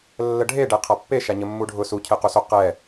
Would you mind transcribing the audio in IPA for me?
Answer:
lː ə ɖʱ e ɖ e qʰ a pː e ʃ a ɲ ə mː u ɖʱ ʊ s u cʰ e q u s o q ɛ

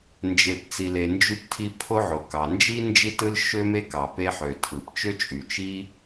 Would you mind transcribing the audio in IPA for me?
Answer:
n d͡ʒ e˩ p t͡s i˩ l e˩ n d͡ʒ y˧ p tʰ i˧ pʰ o˥ ʕ o˩ k ɑ˩ n d͡ʒ i˥ n d͡ʒ i˥ t ɯ˥ l ʃ ø˥ m e˥ k ɑ˩ p e˧ ħ ø˩ tʰ ɯ˩ p t͡ʃ ø˥ t͡ʃʼ y˩ t͡ʃ i˥

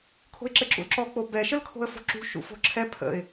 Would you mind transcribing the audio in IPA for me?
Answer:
kʰ o̤ ɪ̯ ǁ ɘ ǁ ṵ l ǁ ɔ k͡p o b ɛ ʃ ə l kʰ o̤ ə̯ f o̤ ǁ ṳ ʃ ṵ f o̤ ǁʰ ɛ pʰ ə̰ ɪ̯

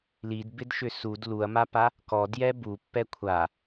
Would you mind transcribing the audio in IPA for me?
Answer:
l i d b ɪ d ʃ ʏ s u d l u ɐ̯ m a p a | k ɔ d j ɛ b u pː ɛ kʷʰ a

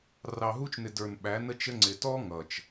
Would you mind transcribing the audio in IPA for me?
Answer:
r ɑ˨ ɦ u˧ t͡ʃ n ɪ˨ d ə˞˨ n ɓ æ˨˦ n ə˦ t͡ʃ ə˦ ŋ͡ǀ ɪ˨ t ɔ˦ ŋ ʌ˨ t͡ʃ

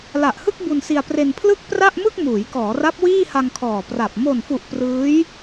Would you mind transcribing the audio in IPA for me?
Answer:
l a˨˩ ʔ h ɯ˥˩ k̚ b u˧ n s i˧ a̯ p r e˧ n pʰ l ɯ˥˩ k̚ p r a˥˩ ʔ m ɯ˥˩ k̚ m uː˩˦ j k ɔː˩˦ r a˦˥ p̚ w iː˥˩ h a˧ ŋ kʰ ɔː˨˩ p r a˨˩ p̚ m o˨˩ n f u˨˩ ʔ p r ɯː˦˥ j

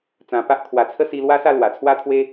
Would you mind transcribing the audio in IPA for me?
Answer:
t͡s ã˧ p a˦ ʔ kʰ w a˧ t͡sʰ ə˦ s i˧ l w a˦ s a˥˧ l w a˨˩ t͡sʰ w a˦ t̪ʰ w e˦

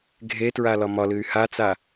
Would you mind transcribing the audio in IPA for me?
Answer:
ɡʱ e t ɹ a l ɒ m ɒ l ɨ y̯ h a t͡s a

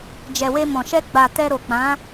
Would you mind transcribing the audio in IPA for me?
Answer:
d͡ʒ ɛ˨ w e˧ m ɔ̃˨ ʃ ɛ˧ ɡ͡b a˨ t ɛ˧ ɾ o˨ k͡p ã˨˦

